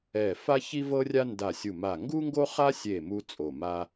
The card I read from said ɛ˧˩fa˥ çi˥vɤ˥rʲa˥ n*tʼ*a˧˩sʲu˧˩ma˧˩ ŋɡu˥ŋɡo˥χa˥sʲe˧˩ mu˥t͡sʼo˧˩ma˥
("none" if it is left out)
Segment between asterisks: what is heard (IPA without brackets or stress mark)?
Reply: d